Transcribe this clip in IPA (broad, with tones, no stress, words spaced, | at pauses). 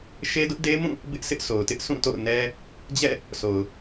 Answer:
ʃe˦dʊ˦ʔde˦mũ˦˨ | bɪ˦ʔsʰɪ˦ʔsʰo˨ʊ̯tɪ˦ʔ sʰũ˦˨to̰˦˨ʊ̯nɛ˦ | d͡ʑɛ̰˦˨ | sʰo˨ʊ̯